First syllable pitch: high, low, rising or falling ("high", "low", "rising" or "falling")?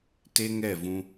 high